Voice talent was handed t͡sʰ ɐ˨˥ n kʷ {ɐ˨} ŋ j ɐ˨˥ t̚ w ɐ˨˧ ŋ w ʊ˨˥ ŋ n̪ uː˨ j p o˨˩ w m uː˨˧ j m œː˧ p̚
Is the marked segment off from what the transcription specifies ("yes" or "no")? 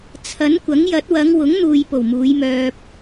yes